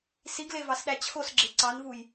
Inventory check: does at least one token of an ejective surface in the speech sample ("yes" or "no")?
no